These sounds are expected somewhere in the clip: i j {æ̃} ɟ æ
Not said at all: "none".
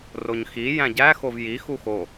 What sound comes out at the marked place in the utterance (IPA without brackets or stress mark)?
æ̃